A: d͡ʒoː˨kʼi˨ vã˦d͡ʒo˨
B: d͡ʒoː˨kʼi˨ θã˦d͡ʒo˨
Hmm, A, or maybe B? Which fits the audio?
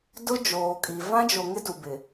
A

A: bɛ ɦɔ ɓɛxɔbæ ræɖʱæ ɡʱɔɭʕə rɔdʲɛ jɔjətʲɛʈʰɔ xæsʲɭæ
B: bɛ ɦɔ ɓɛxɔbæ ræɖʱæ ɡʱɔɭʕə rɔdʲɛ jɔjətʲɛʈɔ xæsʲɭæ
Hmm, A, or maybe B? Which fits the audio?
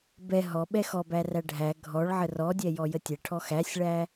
A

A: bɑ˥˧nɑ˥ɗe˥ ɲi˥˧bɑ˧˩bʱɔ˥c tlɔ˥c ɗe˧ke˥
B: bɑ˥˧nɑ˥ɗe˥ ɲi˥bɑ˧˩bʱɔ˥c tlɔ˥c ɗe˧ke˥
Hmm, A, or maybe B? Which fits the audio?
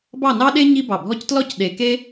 B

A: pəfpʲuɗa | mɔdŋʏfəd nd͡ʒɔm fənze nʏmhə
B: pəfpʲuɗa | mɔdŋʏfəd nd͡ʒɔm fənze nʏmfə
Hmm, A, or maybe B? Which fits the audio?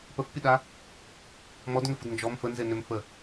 B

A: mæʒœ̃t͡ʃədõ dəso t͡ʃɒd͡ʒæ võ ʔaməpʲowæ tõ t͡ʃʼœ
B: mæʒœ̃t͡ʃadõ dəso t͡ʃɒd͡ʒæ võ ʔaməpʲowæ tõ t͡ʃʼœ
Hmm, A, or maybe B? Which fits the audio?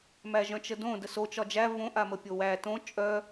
A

